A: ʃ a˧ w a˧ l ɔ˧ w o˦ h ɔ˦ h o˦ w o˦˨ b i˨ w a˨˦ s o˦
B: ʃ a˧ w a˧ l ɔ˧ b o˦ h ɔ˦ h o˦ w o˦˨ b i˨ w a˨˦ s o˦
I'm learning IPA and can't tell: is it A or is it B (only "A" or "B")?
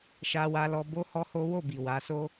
B